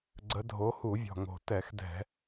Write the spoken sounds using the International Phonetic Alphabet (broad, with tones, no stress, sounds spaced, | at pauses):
ɡ͡ǀ ə˨˦ dʱ o˨˦ h u˧˩˧ vʲ ɔ̤˨˩ ŋ o̤˨˩ t ɛ˧˩˧ x d ɛ̤˧˩˧